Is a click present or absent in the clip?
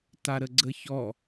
present